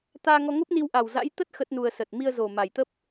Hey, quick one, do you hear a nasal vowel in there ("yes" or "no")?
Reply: no